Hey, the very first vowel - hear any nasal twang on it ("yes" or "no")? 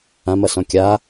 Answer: yes